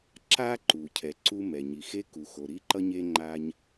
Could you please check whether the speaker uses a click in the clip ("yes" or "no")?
yes